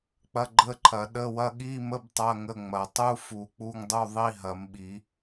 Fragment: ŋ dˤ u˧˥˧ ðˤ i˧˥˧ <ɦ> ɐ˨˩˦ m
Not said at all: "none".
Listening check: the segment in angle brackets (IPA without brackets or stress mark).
ɦ